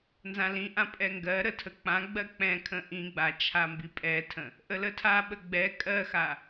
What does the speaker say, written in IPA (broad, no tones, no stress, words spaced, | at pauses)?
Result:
nzãlĩʔã pʼɛŋɡɜɾə tʰək͡pãɡ͡bɜ k͡pɛ̃kʰə̃ ʔĩɡ͡ba t͡ʃʰambipʼɛtʰə̃ | ʔələtʰaɓə ɡ͡bɛ kʼɜxa